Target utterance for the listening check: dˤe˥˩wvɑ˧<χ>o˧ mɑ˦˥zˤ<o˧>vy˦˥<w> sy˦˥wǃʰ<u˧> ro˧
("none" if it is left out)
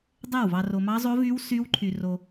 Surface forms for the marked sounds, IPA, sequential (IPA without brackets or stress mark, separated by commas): r, o˦˥, w, y˧